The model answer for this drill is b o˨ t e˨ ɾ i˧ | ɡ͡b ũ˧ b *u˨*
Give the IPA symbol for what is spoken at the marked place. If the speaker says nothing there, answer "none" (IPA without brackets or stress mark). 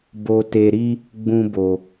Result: o˨